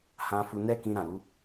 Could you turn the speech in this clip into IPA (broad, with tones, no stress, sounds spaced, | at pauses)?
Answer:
h ã˧ f u˧ n ɛ˦ k ĩ˧ ɾ ã˨ ɾ u˧